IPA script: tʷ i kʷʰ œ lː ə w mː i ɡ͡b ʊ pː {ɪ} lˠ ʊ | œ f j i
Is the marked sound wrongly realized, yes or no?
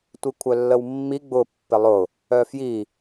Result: no